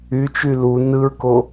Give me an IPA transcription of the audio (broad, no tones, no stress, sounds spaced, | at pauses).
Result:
y t͡ʃ y l u n ɯ ɹ k o